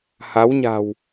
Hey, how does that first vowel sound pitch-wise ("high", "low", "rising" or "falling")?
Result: rising